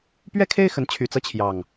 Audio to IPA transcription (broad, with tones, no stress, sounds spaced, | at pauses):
p ɥ ɛ˦ kʰ e˦ ɪ̯ x ə˨˦ n t͡ɕʰ y˨˩ t͡s ɤ˦ t͡ɕʰ j ɑ˨˩ ŋ